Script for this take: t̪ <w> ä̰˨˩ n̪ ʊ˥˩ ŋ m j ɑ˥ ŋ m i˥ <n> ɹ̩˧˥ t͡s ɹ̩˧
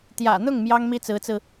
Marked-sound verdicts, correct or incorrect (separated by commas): incorrect, incorrect